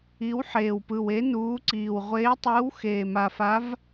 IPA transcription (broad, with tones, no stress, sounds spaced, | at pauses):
i˨˥ w ħ eː˨˩ w p ɯ˨˩ w e˨˥ n uː˨˥ ǀ iː˨˩ w ʁʷ eː˨˥ tˤ ɯː˨˥ w x eː˨˩ m a˨˩ f a˨˥ v